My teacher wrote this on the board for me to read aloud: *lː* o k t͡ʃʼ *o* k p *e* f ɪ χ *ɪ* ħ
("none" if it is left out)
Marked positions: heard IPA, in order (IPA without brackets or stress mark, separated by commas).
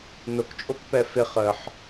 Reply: n, o, ɛ, ə